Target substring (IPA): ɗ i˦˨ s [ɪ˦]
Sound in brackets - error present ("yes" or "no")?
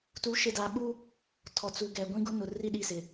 yes